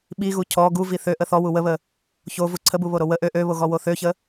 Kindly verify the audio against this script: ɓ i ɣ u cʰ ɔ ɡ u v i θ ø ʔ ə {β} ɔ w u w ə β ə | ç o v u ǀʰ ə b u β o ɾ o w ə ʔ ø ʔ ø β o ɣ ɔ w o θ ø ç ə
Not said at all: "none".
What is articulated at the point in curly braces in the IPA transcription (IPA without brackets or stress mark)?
θ